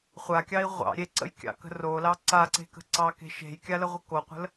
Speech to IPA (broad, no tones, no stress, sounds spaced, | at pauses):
χʷ a kʲ ɑ i̯ ʁʷ ɑ̰ ɾʲ e ǀ ə̰ j kʲ ɑ̰ k ə̤ r o l ɑ ǀ a ǀ e̤ k ə̤ ǀ ɑ k e̤ ʃ e̤ j kʲ a l ə ʁʷ ə k o qʷ ə̤ l